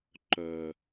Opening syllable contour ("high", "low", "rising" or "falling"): low